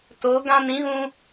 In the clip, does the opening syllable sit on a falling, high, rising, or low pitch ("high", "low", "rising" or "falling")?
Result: rising